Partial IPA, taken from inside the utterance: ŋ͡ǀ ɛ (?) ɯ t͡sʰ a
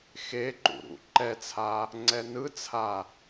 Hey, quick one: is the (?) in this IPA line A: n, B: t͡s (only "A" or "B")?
A